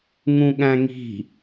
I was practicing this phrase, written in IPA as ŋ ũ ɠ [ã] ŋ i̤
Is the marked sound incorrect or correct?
incorrect